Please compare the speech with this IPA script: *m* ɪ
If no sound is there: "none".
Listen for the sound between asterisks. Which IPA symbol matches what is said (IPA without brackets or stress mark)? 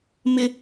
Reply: m